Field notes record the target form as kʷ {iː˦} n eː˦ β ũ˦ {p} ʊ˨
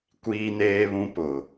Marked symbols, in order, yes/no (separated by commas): yes, yes